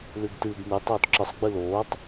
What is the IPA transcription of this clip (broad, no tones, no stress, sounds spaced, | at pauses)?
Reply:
l ʉ ɡ t ɨː ɡ n ɨ tˤ oː t ǁ ɨ sˤ ɡ͡b ɨ l oː tˤ